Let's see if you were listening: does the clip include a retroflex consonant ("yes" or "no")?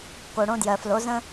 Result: yes